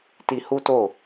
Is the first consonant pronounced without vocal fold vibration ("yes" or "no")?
yes